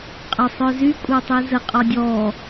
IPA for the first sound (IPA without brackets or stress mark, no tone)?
qʼ